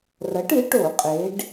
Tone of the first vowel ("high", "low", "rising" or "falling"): rising